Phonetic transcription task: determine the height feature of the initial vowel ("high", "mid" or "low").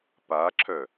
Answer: low